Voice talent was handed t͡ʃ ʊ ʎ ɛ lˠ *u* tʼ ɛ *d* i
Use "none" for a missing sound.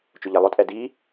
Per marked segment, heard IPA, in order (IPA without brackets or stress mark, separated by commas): ʊ, d